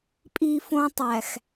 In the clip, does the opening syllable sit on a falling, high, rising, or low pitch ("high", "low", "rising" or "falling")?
high